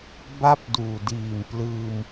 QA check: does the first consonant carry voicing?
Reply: yes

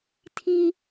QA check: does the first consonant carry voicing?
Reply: no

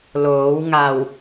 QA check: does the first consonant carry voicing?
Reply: yes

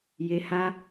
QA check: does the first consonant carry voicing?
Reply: yes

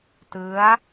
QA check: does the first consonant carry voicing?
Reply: no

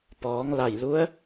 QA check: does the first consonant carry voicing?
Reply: no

